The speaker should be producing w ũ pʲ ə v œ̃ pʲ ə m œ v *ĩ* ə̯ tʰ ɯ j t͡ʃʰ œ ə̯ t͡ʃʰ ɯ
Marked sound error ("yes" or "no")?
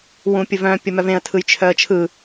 yes